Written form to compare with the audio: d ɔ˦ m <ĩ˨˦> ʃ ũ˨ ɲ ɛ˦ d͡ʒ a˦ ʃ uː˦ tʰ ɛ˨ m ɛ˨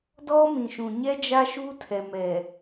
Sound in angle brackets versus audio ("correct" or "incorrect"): incorrect